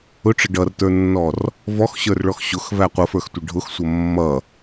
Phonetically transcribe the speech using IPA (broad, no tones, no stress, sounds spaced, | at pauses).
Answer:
ʊ ʈ͡ʂ ə ɖ ʌ r t ə˞ nː ɔ r | v ɔ x ɕ ə˞ r ɭ ɔ x ɕ ʊ x v æ qʷ ʌ f ə˞ x tʷ ə ɖʱ ʊ x sʷ ʌ mː ʌ